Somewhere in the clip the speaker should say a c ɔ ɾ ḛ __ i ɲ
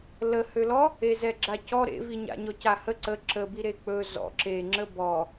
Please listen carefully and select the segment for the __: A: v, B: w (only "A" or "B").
A